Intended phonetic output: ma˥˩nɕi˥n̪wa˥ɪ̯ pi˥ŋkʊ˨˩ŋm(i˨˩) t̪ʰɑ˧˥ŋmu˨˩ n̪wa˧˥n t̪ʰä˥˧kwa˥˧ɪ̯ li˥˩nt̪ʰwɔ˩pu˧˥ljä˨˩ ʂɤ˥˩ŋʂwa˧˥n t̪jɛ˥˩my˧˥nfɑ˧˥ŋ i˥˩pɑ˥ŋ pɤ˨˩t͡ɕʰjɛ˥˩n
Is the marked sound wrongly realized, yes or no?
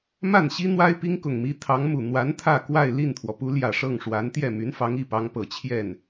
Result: yes